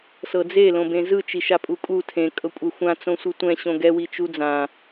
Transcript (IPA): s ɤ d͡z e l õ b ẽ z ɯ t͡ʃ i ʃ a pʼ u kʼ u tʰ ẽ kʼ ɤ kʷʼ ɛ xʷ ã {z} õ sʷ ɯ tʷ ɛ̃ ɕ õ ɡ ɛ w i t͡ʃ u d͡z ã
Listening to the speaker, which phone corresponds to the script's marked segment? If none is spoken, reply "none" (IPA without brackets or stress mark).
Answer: t͡s